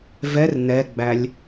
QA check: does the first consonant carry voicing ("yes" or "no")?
yes